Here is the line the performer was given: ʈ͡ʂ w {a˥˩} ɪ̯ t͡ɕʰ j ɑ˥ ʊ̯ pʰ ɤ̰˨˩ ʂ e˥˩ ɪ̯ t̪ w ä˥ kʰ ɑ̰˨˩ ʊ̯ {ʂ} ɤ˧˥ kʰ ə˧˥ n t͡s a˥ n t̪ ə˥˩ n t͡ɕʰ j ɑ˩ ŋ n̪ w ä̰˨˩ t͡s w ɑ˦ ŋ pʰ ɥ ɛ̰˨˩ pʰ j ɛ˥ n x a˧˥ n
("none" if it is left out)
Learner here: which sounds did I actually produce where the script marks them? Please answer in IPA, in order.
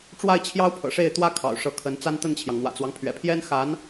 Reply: a˥˩, ʂ

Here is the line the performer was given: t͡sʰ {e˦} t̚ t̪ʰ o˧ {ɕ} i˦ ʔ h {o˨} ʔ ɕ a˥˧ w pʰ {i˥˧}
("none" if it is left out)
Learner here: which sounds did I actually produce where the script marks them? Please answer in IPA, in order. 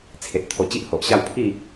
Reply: e˨, t͡ɕ, o˨, i˥˧

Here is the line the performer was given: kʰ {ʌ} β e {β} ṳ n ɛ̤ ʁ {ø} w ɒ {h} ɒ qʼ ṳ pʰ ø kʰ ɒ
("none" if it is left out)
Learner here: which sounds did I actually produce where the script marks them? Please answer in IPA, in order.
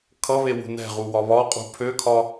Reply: ʌ, w, u, β

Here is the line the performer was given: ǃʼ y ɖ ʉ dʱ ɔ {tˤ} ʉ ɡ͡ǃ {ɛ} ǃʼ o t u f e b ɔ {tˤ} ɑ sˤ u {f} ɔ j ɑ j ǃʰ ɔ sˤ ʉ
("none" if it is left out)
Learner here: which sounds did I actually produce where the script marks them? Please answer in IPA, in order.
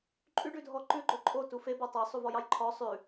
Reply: ǃ, ø, tˤ, v

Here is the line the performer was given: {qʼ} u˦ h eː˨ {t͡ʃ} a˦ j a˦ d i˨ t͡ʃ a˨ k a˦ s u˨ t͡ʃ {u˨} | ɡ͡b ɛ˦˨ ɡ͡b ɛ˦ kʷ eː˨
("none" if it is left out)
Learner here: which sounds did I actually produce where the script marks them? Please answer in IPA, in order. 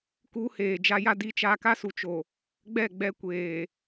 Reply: k, d͡ʒ, o˨

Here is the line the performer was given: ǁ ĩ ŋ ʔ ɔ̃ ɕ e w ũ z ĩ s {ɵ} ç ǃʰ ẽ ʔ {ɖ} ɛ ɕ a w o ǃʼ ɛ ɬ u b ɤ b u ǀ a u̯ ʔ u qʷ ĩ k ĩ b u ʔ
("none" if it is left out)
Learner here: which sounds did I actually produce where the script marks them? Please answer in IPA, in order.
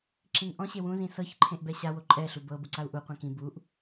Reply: ɤ, b

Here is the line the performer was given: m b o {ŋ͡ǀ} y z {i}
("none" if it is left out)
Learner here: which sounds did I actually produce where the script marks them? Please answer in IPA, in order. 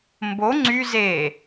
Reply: ŋ͡ǀ, e

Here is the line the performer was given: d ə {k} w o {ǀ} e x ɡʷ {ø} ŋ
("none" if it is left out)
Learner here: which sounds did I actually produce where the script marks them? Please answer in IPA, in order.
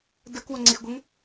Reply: k, ŋ͡ǀ, ə

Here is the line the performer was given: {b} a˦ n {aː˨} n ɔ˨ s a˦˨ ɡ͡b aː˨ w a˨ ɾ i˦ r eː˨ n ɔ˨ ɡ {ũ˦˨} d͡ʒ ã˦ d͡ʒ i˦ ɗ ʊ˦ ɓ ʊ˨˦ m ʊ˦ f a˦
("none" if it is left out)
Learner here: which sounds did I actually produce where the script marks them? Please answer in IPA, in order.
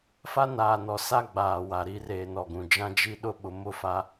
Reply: f, aː˨, ũ˨

